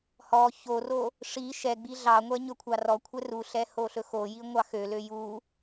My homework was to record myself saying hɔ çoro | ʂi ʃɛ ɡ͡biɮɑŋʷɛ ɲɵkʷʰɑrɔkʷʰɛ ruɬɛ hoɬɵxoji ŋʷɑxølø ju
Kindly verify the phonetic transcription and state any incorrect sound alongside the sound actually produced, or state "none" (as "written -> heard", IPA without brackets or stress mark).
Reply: none